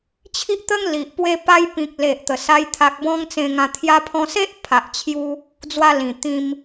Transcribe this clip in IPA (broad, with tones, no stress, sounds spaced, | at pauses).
t͡ɕʰ i˦ ʔ t̪ ə˦ ŋ l i˨ ʔ p w e˧ p a˧ j p ĩ˨ k̚ l e˨ ʔ t̪ ə˨˩ s a˧ j t̪ʰ a˨ k̚ b ɔ̃˧ ŋ t͡s ẽ˧ ŋ ã˧ t̪ʰ j a˧ pʰ ɔ̃˧ s e˦ ʔ pʰ a˨ ʔ t͡ɕʰ j u˧ | d͡z w a˧ l ĩ˨˩ t̪ ĩ˧ m